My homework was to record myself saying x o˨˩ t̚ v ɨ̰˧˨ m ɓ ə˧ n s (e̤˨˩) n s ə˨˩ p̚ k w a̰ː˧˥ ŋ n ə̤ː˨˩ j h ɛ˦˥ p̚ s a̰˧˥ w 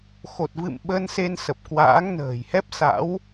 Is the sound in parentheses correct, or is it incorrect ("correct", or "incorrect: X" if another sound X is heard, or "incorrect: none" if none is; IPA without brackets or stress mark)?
incorrect: e˧